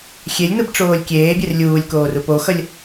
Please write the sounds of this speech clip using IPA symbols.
xʲ e lʲ n̪ ɯ b ʈ͡ʂ oː lʲ kʲ eː bʲ e r lʲ uː lʲ k oː r u p o x ʌ lʲ

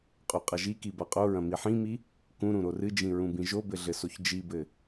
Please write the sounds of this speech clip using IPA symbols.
qʼ u qʼ ɐ ʒ i k i b a qʼ o ɹ ɐ̃ m i ħ ĩ m i | k ũ ɾ ũ ɾ o r ɨ d͡ʒ ĩ ɹ ũ b ĩ ʒ o b ɘ ɮ ɘ s o ç d͡ʒ i b ɘ

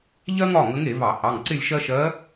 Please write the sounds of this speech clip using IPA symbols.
ʎ ɜ˥ ŋ ɒ˩˧˩ ŋ ə˧˥ ŋ e˧˩˧ v ɑ˧˩˧ h ɑ˩˧˩ ŋ ǀ ɪ˥˧ lʲ ʃ ɜ˥ ʃ ɜ˧˥

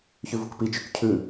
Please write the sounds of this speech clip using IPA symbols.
ç ʉ v u k p i t͡ʃ ʉ k cʰ ʉ

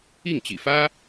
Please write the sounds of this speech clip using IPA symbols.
i˥˩ ŋ t͡ɕ ḭ˨˩ f ä˥

